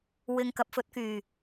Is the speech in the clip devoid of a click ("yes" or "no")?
yes